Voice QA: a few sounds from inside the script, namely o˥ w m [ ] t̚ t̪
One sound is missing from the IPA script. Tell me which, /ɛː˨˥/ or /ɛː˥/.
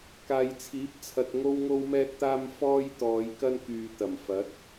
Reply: ɛː˥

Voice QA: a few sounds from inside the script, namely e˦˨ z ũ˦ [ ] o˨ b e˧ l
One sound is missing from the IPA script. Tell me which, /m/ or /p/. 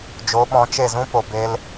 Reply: p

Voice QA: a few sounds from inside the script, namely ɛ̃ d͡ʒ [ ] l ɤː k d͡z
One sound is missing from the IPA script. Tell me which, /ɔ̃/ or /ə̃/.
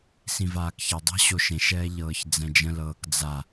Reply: ə̃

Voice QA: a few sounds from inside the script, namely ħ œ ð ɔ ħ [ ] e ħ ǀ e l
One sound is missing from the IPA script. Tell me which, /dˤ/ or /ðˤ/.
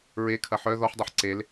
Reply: dˤ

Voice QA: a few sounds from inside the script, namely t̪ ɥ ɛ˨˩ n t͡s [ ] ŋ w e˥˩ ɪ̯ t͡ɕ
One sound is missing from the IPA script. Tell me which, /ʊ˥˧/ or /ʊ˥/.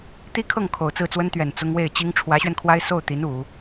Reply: ʊ˥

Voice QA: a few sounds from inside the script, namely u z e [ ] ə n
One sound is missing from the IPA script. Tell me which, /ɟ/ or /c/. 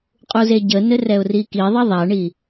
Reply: ɟ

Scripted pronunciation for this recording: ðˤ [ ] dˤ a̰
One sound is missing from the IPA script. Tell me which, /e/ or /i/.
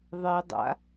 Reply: e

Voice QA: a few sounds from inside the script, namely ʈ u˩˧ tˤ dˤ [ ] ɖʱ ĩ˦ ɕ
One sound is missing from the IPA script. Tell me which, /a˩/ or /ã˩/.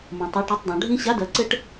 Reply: ã˩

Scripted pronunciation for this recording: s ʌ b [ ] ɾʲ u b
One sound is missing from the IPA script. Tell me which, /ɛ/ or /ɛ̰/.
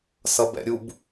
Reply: ɛ̰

